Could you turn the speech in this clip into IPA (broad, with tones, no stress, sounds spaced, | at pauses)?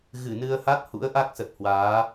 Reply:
ɣ ɨ˧˩ n ɨ˧ ə̯ h a˦˥ t̚ h ṵ˧˥ ə̯ ʔ a˦˥ k̚ s ə˨˩ t̚ h w aː˨˦